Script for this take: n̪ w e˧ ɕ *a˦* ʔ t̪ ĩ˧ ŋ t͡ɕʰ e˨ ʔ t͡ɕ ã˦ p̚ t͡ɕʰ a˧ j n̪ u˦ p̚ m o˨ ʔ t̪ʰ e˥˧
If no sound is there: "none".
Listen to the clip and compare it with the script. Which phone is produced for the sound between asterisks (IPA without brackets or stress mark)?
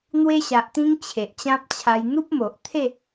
a˨